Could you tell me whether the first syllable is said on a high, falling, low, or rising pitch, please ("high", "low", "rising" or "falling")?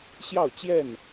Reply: falling